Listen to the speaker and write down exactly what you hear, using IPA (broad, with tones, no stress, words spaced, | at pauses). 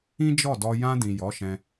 ĩ˦d͡ʒɔ˦˨dɔ˧ jã˧dĩ˨ jɔ˨˦ʃɛ̃˧